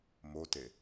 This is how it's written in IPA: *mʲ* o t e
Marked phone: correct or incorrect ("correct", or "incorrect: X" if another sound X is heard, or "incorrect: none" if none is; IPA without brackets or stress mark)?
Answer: incorrect: m